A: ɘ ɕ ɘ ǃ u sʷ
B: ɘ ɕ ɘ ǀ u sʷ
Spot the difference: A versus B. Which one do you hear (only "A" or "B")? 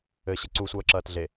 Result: B